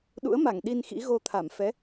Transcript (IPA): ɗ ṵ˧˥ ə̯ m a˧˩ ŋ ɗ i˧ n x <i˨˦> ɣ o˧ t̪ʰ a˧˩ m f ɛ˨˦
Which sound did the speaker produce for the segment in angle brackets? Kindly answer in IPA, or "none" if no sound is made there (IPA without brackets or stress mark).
ḭ˧˥